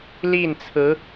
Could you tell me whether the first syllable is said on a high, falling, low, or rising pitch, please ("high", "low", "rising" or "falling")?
falling